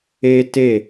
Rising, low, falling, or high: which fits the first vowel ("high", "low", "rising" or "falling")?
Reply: high